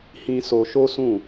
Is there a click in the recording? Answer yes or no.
no